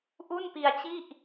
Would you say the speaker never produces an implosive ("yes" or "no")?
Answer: yes